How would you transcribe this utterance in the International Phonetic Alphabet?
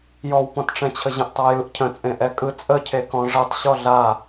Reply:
j ɔ w p ɔ̃ t ʈ͡ʂ ɛ̃ t͡ɕʰ ə ʑ ə̃ ʔ tˤ a j ɯ ʔ cʰ ə̃ t͡sʼ ẽ ʔ ɛ kʼ ɯ t͡sʼ ə cʰ e k ɔ̃ ʐ ɨ tˤ ɕ ɔ ɮ a

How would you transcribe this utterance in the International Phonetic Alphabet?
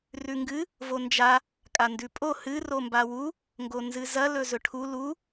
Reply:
r ʉ ŋ ɡ ɨ | v o n d͡ʒ a | kʼ a n d ʉ pʼ o h ɨ r o m b a w u | ŋ ɡ o n z ɨ z ɐ l ɵ z ɵ ʈʰ u l u

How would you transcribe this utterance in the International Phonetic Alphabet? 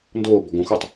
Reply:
n d oː b ɔ ɡ õ x o tˤ

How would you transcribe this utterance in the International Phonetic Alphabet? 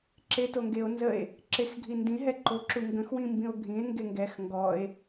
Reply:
ǁ e t o ŋ ɡ e o̯ n z ə e̯ | ǁ e x ɡʱ i n d ĩ ɦ ɛ ǃ o ǁ u ŋ ɡ ə̃ x w ĩ m b ĩ o̯ ɡʱ ĩ e̯ ŋ ɡ e ŋ ɡ ɛ x ŋ ɡ ɔ e̯

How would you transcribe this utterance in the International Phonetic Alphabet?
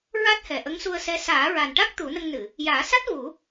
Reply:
ɹ a˦˥ t̚ h ɛ˨˩ ʔ ə˧˥ ŋ s u˧ ə̯ s ɛ˧˥ s aː˨˩˦ ɹ a˨˩ n ʈ a˦˥ k̚ t̪ u˨˩˦ n ə˧ ŋ n ɨ˨˩˨ | j aː˨˩˦ s a˦˥ t̚ v u˨˩˦

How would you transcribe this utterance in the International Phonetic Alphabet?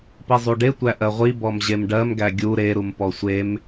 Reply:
p i zˤ u ɖ e tʷ æ ʔ ɜ ʁʷ i b ɔ m ʑ e m ɖ ɜ m ɡ æ ɡʲ u ɾ e ɾ u m p ɔ sʷ e m

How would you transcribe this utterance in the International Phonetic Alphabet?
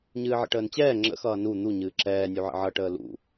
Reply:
ɲ ɨː ʕ ə̰ ʈ əː n t͡ɕ ɛː ŋ͡ǁ ə̰ x ʌː n u n̪ u ɲ ɨː ǁ ɛː nʲ u ʕ ə̰ ʕ ʌ ʈ əː l ṵ

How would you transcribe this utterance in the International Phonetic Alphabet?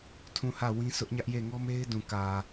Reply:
tʰ ũ˦˨ h ä˦˨ w ĩ˦ s ʊ˦ ʔ ɲ ä˦ ʔ j e˦˨ ŋ ɔ˦ m e˦ ɪ̯ d ũ˨ k ä˨

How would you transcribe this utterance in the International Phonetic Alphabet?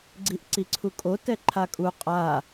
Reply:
ɡ͡ǀ i ʔ ǀ i ǀʰ u kʼ o t ɛ ǃʰ a kʼ u qʼ a

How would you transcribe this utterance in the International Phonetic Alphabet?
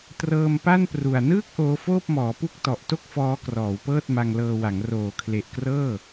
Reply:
t r ɤː˧ m p a˥˩ n p r u˨˩ a̯ n ɯː˥˩ k̚ ʔ oː˦˥ f oː˥˩ p̚ m ɔː˩˦ p u˥˩ k̚ t ɔ˨˩ ʔ t o˥˩ k̚ f ɔː˦˥ k r ɔː˩˦ w p ɤː˥˩ t̚ m a˧ ŋ l ɤː˧ w a˩˦ ŋ r oː˩˦ kʰ l e˨˩ ʔ k r ɤː˥˩

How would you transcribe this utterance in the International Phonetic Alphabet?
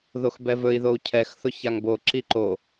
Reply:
ð o x b ɛ v ɵ i̯ ð o u̯ cʰ ɛ x θ ʊ ç a ŋ b o ǁ i ǃ o

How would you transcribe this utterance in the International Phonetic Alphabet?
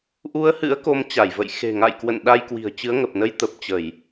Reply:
ʔ u˧ ə̯ h ɨ̰˧˥ ə̯ k o˧ m t͡ɕ a˧˩ j v ə̰˧˨ j x e̤˨˩ ŋ a̰˧˨ j k w ə̰˧˨ n ɗ a˧ j k w i̤˨˩ ə̯ t͡ɕ ɨ˨˦ ə̯ ŋ ə˨˩ p̚ n ə˧ j t̪ ə˨˩ p̚ t͡ɕ ə˧˩˨ j

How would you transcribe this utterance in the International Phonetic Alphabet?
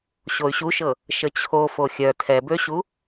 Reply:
ɕ o y̯ ɕ u ʃ ɤ | ʃ ə t͡ɕʰ o f o xʲ œ tʰ ɛ b ø ɕ u

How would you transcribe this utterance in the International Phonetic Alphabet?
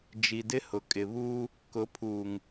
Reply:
d͡ʒ i˨ d ɪ˦ h ʊ˨ kʼ ɪ˨ β uː˦ | k ʊ˨˦ pʰ uː˨ ŋ

